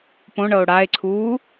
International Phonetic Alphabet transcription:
põɳɤo̯ ɽae̯ǀʰuː

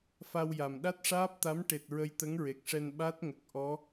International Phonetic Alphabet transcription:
fa˧wja˨˩m ɗa˦˥t̚ʂaː˦˥p̚t̪a˧˥m ʈe˨˩t̚ ɹə˧jt̪ə˧˥ŋɹe˨˩k̚ʂɛ˧n ɓa˦˥t̚ŋə˨˩k̚ ʔɔ˧˥

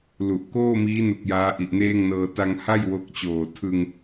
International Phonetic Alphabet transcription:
lu˨˩ʔ koː˥˩miː˦˥nu˨˩k̚ jaː˦˥ʔi˨˩ʔneː˥˩ŋnɤː˧ ta˧ŋha˥˩j wo˦˥k̚t͡ɕoː˨˩ tʰɯ˧ŋ

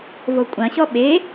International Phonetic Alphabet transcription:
vokʷʼɐ̃ɕɔ ɓe

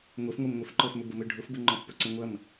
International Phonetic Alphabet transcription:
ŋʷefŋʷem ŋʷefǃɔfmʏ bəmøɖʱʊfbə ŋ͡ǃɔ̃fpʊǀẽ ŋʷɐm

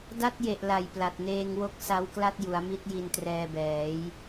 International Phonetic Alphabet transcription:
da˦˥t̚je˨˩ʔ la˨˩jpla˨˩t̚neː˧ŋwo˦˥k̚ sa˦˥wkla˥˩t̚ ju˩˦a̯mi˦˥t̚ ji˧ntrɛː˧bɛː˩˦j

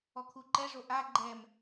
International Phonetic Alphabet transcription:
ɔkʰuǃɛʐo ʔa ɡ͡ǃɛm

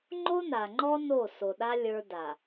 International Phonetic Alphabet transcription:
ŋ͡ǃo˦na˨ŋ͡ǃɔ˦ no˦˨so˨ɗa˦ lʲə˞˦da˨

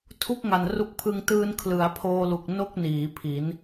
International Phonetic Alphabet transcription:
tʰu˥˩k̚ŋa˨˩nru˦˥k̚pʰɯ˧ŋ tɯː˧n kʰlɯ˩˦a̯pʰoː˧lu˨˩k̚ no˥˩k̚niː˩˦ pʰi˩˦n

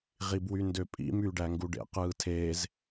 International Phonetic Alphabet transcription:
ʁibwyndøpʼḭ myːɖæŋɡuɖḛ qɯːtʰeːz

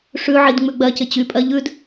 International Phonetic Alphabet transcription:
ʂʉ ʕidŋ͡mʉɡ͡bɜcɪ t͡ɕypʼɜ ʎʉd

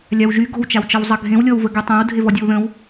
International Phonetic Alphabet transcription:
lʲawʒy ɡo̤wt͡ʃawt͡ʃʌw zˤʌɡʱẽwlʲɔwvə ɡytˤæ̃w dʱevɔdʲowðə̃w

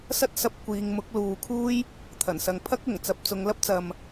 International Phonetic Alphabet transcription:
sɐ˥t̚sɐ˧p̚ kʷiː˨˧ŋ mʊ˨˥k̚luː˨kʰuː˥j | t̪ʰɐ˨˩nsɐ˨ŋ pʰɐ˥k̚ ʊ˨˩ŋt͡sɐ˨˥p̚ t͡sʊ˨˧ŋlɐ˥p̚ t͡sɐ˨m

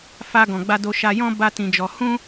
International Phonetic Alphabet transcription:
fa˧ɡɔ̃˨ɡ͡ba˧do˧ ʃa˧jɔ̃˦ ba˦tĩ˧d͡ʒɔ˧ hũ˦

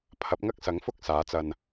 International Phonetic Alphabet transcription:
pʰɐ˨˥p̚ŋɐ˥k̚ sɐ˨˥ŋfʊ˥k̚ saː˨˥t͡sɐ˧n

